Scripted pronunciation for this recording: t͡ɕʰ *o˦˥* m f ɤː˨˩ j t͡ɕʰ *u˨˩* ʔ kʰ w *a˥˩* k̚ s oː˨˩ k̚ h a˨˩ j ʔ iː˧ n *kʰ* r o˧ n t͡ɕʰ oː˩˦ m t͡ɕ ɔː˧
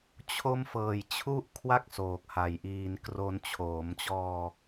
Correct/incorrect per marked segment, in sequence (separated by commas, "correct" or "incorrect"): correct, incorrect, correct, incorrect